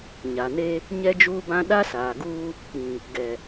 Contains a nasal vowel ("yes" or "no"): yes